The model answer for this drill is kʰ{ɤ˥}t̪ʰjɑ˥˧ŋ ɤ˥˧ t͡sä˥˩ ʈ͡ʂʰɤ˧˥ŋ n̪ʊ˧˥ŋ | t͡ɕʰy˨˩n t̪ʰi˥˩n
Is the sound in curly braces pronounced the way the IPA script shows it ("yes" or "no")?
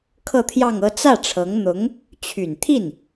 no